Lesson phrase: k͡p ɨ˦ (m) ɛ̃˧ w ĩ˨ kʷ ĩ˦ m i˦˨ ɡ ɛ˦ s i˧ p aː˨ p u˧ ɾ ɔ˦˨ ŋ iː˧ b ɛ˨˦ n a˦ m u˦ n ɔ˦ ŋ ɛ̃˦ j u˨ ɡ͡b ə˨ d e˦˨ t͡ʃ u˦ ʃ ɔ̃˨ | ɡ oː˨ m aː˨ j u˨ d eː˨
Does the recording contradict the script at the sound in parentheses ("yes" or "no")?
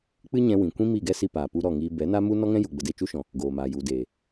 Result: yes